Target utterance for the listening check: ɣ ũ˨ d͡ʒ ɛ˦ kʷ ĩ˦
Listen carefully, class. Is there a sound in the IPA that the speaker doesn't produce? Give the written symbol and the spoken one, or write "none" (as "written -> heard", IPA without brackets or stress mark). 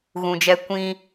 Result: none